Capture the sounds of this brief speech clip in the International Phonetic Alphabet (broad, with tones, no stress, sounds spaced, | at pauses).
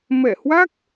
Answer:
m ɛ˧˩ h w a˦˥ k̚